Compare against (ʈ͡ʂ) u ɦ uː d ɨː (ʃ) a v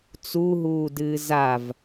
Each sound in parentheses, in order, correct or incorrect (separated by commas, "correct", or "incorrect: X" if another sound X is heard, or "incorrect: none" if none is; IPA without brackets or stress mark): incorrect: t͡s, incorrect: z